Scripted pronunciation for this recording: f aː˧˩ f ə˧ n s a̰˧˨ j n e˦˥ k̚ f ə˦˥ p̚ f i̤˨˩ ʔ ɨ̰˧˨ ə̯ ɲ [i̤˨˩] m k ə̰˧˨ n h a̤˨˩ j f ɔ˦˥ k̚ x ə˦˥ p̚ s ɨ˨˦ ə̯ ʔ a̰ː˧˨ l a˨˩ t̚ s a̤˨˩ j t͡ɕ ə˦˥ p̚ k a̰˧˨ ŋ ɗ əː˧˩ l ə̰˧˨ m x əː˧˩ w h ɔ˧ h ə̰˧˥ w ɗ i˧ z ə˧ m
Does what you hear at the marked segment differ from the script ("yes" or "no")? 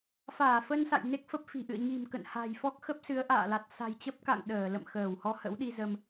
no